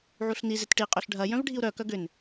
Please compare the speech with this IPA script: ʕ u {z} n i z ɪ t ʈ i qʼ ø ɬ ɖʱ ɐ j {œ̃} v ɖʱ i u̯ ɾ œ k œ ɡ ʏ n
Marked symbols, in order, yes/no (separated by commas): no, yes